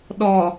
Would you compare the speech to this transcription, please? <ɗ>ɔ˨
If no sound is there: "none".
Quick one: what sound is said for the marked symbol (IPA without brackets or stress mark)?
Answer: ɗ